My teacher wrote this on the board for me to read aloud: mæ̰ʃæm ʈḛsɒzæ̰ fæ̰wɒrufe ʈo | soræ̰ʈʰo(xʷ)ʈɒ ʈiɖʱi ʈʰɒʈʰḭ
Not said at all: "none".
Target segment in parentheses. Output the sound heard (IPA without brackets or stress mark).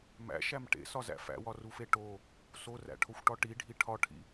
xʷ